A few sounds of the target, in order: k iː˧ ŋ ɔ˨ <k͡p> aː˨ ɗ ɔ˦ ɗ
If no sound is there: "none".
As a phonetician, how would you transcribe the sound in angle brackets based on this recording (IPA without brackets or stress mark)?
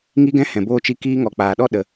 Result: k͡p